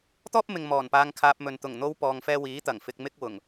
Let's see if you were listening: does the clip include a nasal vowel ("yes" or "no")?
no